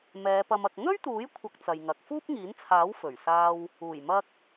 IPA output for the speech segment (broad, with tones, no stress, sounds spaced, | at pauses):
m ɛː˨˧ p ɐ˧ m ɐ˨ k̚ ŋ ɵ˥ ɥ t̪ uː˨˥ j kʷʰ ɐ˧ k̚ t͡s ɐ˨ j ŋ ɐ˨ k̚ f uː˥ p̚ ŋ iː˨˥ n t͡sʰ aː˨˥ w f ɵ˨˩ ɥ s aː˧ w | uː˨˩ j m ɐ˧ k̚